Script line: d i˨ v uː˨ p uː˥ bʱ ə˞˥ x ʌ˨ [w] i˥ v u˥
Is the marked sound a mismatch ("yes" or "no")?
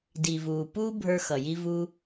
yes